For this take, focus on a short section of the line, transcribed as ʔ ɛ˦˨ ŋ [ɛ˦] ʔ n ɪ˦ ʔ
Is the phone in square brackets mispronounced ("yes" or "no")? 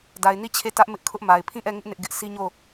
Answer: yes